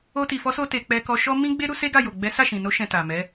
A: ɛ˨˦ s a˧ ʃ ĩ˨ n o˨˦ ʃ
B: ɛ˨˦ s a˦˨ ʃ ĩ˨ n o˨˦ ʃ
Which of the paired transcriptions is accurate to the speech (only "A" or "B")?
B